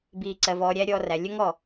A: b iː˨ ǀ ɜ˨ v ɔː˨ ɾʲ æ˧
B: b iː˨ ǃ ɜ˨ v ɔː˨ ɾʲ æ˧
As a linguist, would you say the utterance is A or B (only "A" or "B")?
A